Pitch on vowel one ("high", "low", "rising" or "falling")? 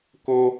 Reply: high